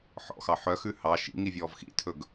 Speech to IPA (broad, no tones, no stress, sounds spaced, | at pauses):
ħ ɔ̰ x ɑ ħ œ x ʉ h ɑ ʃ ḭ ŋ i vʲ ɔː v x ḭ tʰ ɵ ɡ